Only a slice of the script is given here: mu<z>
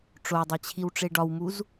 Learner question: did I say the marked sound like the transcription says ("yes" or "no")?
yes